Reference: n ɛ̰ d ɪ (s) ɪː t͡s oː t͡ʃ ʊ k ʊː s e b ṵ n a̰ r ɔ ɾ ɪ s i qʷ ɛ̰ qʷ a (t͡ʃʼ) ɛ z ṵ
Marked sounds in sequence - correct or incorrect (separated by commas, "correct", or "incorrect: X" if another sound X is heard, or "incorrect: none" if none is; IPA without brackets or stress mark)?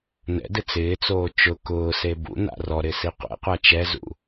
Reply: incorrect: t͡s, incorrect: t͡ʃ